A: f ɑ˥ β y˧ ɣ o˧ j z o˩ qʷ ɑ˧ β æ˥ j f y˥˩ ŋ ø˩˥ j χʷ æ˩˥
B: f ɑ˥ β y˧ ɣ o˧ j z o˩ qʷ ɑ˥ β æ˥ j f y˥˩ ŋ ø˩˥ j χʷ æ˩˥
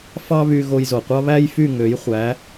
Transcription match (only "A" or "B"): B